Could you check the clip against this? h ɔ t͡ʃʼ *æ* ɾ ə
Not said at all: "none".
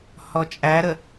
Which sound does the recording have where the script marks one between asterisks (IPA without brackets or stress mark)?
æ